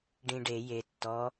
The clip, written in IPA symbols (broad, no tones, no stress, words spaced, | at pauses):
ɖĩɖe je tːɔ